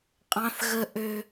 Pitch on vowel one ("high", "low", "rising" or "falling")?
high